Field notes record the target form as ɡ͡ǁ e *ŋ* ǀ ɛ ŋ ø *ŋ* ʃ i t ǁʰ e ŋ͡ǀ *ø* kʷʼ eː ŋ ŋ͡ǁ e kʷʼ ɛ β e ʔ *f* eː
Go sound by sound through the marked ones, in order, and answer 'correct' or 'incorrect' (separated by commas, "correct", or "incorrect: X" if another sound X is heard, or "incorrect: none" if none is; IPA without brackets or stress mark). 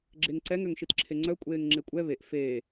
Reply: correct, correct, incorrect: œ, correct